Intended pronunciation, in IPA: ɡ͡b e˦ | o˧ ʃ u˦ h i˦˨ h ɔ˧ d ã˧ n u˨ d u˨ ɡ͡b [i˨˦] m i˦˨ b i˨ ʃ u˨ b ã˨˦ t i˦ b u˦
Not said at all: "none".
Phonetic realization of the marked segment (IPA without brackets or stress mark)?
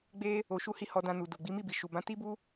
i˨˦